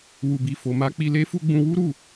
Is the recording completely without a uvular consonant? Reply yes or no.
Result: yes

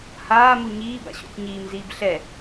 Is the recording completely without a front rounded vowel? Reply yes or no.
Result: yes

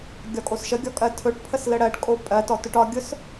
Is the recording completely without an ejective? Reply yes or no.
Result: no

